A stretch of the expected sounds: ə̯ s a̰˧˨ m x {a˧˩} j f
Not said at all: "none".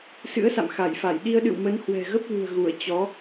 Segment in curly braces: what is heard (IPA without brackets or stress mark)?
a˧˩